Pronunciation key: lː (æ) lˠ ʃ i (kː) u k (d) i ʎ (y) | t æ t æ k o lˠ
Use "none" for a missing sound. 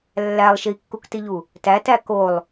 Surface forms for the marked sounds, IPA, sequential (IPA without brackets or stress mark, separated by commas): æ, kː, t, u